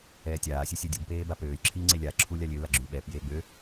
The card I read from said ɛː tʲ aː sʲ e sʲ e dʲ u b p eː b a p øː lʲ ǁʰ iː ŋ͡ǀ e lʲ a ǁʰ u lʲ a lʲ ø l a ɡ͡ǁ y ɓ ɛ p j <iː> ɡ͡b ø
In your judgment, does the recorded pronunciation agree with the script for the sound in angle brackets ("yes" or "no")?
no